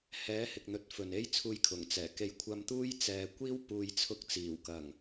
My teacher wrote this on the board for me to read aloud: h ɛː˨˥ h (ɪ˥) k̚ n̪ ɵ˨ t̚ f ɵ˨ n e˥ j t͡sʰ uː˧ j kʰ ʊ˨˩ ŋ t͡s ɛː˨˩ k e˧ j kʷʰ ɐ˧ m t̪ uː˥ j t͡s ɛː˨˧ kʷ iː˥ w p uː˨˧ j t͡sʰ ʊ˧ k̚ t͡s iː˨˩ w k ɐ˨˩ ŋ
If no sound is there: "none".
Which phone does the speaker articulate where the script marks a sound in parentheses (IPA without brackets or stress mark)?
ɪ˨